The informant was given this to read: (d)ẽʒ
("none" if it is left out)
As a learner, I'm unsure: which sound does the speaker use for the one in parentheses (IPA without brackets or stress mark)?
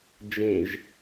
d͡ʒ